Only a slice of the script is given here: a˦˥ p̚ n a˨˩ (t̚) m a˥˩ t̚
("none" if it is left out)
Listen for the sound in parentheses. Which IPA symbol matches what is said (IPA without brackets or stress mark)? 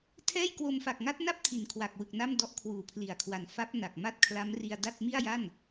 k̚